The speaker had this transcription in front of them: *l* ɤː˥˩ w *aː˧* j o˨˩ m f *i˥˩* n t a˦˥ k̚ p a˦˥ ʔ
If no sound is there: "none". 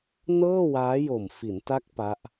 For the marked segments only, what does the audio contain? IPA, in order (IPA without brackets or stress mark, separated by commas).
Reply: n, aː˦˥, i˩˦